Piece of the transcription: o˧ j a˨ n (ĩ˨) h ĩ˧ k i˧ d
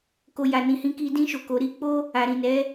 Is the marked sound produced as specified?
yes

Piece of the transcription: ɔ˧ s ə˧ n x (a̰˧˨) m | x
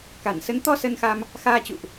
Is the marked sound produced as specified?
no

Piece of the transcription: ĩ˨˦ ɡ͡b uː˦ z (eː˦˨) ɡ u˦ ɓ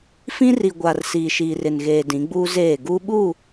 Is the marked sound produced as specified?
yes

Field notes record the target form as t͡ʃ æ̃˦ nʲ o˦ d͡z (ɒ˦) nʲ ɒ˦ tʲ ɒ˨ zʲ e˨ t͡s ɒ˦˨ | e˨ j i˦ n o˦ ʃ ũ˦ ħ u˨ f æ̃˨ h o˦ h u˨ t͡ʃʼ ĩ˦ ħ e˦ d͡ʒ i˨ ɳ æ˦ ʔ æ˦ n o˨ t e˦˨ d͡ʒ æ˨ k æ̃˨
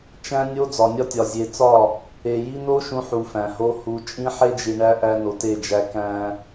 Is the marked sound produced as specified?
no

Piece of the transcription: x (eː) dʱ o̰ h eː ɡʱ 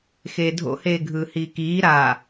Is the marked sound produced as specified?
yes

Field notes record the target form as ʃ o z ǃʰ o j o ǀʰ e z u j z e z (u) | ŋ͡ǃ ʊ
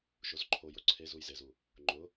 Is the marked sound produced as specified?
yes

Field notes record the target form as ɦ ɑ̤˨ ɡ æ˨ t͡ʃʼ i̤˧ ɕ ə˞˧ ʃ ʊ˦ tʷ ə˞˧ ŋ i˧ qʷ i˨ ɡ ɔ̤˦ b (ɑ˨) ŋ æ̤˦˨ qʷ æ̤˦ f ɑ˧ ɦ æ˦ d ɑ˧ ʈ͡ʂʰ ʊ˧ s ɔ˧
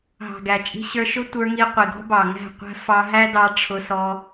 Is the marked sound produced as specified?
yes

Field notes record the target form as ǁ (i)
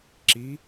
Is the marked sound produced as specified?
yes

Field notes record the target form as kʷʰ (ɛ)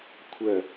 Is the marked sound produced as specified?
no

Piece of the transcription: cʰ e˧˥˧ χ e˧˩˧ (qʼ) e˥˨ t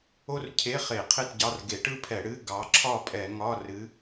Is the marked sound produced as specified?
no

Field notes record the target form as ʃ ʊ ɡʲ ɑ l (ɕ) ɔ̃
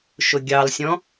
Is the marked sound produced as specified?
no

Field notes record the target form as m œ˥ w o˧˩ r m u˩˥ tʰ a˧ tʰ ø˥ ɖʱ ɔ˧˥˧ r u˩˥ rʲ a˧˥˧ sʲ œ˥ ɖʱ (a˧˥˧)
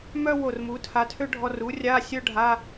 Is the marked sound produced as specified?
yes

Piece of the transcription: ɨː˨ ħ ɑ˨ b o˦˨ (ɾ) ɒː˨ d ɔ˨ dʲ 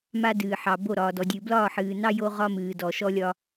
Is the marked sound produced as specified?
yes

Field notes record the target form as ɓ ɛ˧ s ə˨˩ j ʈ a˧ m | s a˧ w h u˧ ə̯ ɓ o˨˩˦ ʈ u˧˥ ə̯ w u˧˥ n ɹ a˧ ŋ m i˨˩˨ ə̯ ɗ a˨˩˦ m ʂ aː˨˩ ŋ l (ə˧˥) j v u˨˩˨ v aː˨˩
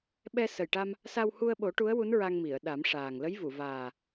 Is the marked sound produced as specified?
yes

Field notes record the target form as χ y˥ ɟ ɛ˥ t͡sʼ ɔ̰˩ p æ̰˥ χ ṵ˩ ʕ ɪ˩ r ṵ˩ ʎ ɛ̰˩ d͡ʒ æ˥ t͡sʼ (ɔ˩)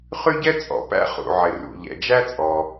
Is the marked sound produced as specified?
yes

